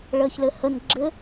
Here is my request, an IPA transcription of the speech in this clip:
ɭ əː ç l ɘ h ə n ɡ͡ǁ ɘ

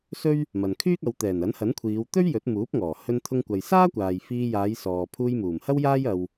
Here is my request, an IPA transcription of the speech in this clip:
s ɵ˥ ɥ | m ɐ˨ n kʰ yː˥ k̚ ɐ˨˧ w t̪ ɛː˨˩ n ɐ˨˥ n h ɐ˨˥ n kʷʰ iː˨˧ w t̪ ɵ˥ ɥ j ɵ˨˥ t̚ m uː˨˥ p̚ ŋ ɔː˨˩ h ɵ˧ n t̪ʰ ʊ˧ ŋ kʷ ɐ˨ j s aː˥ kʷ aː˨ j f iː˧ j aː˨˧ j s ɔː˨ pʰ uː˧ j m uː˨˩ m h ɐ˥ w j aː˥ j ɐ˧ w

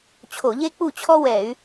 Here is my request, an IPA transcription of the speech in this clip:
t͡ɕʰ o˧˩˧ ʎ e˥ k͡p u˥˩ t͡ɕʰ ɔ˥ w ɛ˧˩˧ y̯

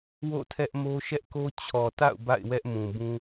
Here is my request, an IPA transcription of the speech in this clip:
w o̰˦˨ tʰ ɛ˦ ʔ m o˦ ʃ ɛ˦ ʔ k o˦ t͡ɕʰ ɔ˨ t a̰˦˨ ʊ̯ b a̰˦˨ ɪ̯ w ɛ˦ ʔ m ũ˨ b ũ˦

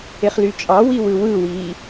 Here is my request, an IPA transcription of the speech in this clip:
e χ l y t͡ʃʼ ɑ w i w ɯ w ɯ w iː

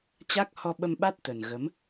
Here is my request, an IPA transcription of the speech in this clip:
t͡ɕ a˦˥ k̚ h ɔ˧ ɓ ə˧ m ɓ a˦˥ t̚ t̪ ə˨˩ n ɣ ə˨˦ m

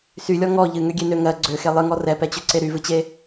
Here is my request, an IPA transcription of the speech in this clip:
s y lʲ ɔ ŋ ɔ ʎ ɨ ŋ ø ɡʲ e n ø ŋ ɜ ɡ͡ǀ ø x e lˠ ɨ ŋ ɔ r ɛ p ɛ t͡ɕ ø ǀ e ɾ y v ɨ t͡ɕ e

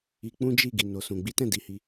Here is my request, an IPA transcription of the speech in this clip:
i˧ k͡p ũ˦ d͡ʒ i˦˨ ɡ i˨ n o˨ s ũ˨ ɡ͡b i˨˦ t ɛ̃˦˨ d i˨˦ h i˧

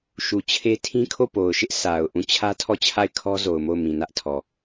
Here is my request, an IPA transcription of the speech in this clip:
ʃ u˨ t͡ɕʰ e˦ tʰ ĩ˦ kʰ o˦˨ p o˨ ʊ̯ ʃ ɪ˦ ʔ sʰ a˨ ʊ̯ ʔ ũ˦˨ t͡ɕʰ ä˦ tʰ ɔ˦˨ t͡ɕʰ a˦˨ ɪ̯ kʰ ɔ˦ z o˨ ʊ̯ m o˦˨ ʊ̯ m ĩ˨ n ä˦ ʔ tʰ ɔ˨

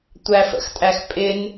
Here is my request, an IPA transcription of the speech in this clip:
tʷ æ f ə̰ x tʼ æ x pʼ ɪ n

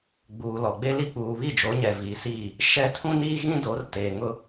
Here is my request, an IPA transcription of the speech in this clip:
ɡ͡b uː˨ l ɔ˨ ɡ͡b e˦ l i˦ k͡p uː˨ β i˦˨ d͡ʒ o˨˦ ɲ ɛ˨ v iː˨ s iː˦˨ | ʃ ɛ˦ tʰ ũ˦ n iː˦ ɣ ĩ˦ d o˨˦ r t eː˨ ŋ ʊ˦

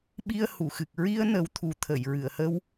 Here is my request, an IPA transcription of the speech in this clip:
ɓ i˧ ə̯ h u˨˩˨ x ɨ˨˩ k̚ ɹ i˧ ə̯ n ə˨˩˦ w t̪ʰ u˨˩˦ t̪ʰ ə˨˩˨ j ɹ ɨ˨˩˨ ə̯ h ə˧ w

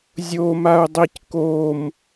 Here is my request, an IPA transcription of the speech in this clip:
zʲ o m a u̯ dˤ i c k o m

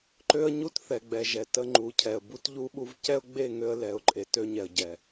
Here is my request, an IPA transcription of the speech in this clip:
ǃ ø˦ ə̯ ɲ u˦ t θ ɛ˨ ɡ͡b ɛ˨ ʒ ɛ˨ t ə˦ ŋ͡ǃ u˨˦ cʰ ɛ˨ ə̯ b u˦ t ʎ u˦ ɓ u˦ v c ɛ˦ ʊ̯ ɡ͡b e˦˨ ŋ ø˦ ə̯ l ɛ˨ ʊ̯ ǃʼ e˨ t ø˦ ɲ ɛ˨ ə̯ ɟ ɛ˨

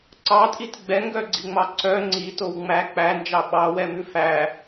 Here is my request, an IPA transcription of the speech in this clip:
ǀ ɑ tʼ i t ɡ͡b ɛ ŋ ɡ œ ɡ͡ǀ i ŋ͡m ɑ ǀ œ ŋ͡ǀ i t o w ŋ͡m æ k͡p æ n d͡ʒ ɑ ɓ ɑ w ɛ m ʉ f æ

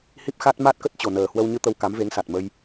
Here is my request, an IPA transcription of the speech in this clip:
h i˦˥ p̚ x a˦˥ t̚ m a˦˥ t̚ k ə˦˥ t̚ t͡ɕ o˨˩ n əː˨˩ h w ə˧ w ɲ ɨ˧ t̪ ə˧ w k a˨˦ m v e˨˦ ŋ s a˨˩ t̚ m ə˧ j

